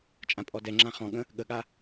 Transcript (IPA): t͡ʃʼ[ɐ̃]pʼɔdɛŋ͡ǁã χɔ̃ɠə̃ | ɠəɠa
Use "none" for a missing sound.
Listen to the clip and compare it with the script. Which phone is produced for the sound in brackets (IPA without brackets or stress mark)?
ã